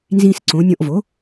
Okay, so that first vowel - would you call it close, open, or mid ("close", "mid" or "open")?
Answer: close